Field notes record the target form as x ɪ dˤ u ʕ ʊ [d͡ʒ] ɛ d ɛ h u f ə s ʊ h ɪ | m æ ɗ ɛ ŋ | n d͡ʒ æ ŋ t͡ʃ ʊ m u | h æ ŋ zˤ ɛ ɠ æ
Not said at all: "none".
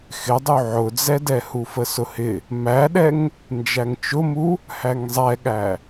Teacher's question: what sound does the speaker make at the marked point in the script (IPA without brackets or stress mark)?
d͡z